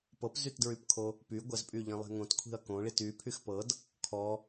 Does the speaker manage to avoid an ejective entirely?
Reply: no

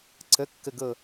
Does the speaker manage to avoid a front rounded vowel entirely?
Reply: yes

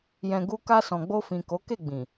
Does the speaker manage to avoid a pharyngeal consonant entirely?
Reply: yes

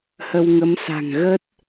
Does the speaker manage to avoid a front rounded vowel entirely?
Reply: yes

